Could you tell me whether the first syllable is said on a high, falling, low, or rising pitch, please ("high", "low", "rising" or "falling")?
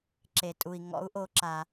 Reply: low